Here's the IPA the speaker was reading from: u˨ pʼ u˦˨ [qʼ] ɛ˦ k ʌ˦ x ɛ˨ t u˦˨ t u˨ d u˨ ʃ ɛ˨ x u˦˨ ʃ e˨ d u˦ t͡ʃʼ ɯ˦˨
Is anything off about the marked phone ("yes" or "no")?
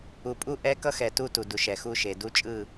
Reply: yes